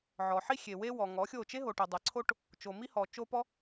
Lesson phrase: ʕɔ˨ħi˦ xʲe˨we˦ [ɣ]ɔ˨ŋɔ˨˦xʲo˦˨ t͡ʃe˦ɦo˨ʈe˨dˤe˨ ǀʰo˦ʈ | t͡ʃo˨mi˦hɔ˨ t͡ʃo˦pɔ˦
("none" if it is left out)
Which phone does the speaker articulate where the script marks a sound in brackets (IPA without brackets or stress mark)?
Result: w